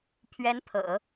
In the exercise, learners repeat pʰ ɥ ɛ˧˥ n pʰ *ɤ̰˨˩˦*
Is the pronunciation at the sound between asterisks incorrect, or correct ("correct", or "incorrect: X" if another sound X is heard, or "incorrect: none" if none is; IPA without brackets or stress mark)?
correct